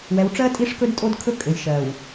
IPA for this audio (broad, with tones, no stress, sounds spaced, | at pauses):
w ɛ˨ w ʈ͡ʂ ɜ˦ tʼ i˦˨ ʂ k ɵ˦ d tʼ o˦ d kʰ ɵ˦ kʼ ɘ˨ j ʃ ɜ˨ w